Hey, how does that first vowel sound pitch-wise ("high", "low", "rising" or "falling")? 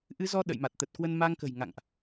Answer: rising